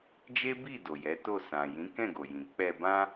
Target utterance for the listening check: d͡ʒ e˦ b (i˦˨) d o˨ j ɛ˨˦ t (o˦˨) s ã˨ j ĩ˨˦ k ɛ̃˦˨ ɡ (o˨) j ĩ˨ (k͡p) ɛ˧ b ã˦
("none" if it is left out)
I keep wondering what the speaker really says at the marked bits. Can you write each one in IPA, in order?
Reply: i˦˨, o˦˨, o˨, k͡p

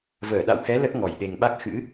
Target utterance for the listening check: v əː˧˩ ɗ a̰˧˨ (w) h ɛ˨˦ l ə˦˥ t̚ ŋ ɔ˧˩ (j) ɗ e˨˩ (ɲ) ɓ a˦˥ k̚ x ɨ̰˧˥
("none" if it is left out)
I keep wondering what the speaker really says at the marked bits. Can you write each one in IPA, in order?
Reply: w, j, ŋ

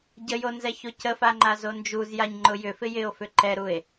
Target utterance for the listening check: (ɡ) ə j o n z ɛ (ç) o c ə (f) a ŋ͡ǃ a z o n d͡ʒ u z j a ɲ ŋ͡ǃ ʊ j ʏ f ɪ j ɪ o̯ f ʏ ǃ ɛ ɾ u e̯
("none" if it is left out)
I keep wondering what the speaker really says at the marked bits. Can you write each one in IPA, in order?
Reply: ɟ, ç, f

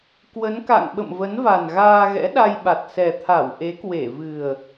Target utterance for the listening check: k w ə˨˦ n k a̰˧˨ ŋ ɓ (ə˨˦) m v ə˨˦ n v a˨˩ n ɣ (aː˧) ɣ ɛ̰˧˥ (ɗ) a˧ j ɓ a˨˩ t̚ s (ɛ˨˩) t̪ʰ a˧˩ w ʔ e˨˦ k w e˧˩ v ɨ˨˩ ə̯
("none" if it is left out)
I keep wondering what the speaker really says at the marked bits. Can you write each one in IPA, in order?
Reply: ə̰˧˨, aː˧, ɗ, ɛ˨˩

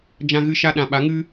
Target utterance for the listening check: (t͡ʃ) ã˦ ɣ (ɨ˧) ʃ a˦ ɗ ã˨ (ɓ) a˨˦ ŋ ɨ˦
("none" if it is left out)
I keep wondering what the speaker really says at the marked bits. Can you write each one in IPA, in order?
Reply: d͡ʒ, ɨ˦, ɓ

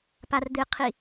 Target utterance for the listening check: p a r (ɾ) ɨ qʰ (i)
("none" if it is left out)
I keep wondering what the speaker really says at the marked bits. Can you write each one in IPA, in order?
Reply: d̪, i

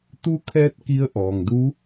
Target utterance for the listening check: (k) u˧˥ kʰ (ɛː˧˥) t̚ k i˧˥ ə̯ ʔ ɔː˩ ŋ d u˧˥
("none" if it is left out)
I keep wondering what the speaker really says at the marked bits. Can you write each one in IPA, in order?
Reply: t̪, ɛː˧

